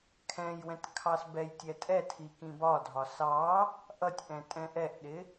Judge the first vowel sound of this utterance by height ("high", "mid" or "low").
mid